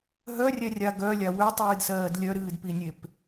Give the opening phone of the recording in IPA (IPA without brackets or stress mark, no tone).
ɦ